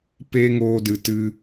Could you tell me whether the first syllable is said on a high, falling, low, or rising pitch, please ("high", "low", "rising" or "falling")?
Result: high